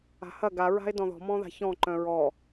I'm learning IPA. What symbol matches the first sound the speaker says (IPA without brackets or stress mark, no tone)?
a̤